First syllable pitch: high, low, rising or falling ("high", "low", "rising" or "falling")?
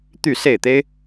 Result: falling